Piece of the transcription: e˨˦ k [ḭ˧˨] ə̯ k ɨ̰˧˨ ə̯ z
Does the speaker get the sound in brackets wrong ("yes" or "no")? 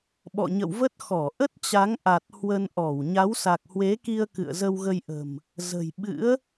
yes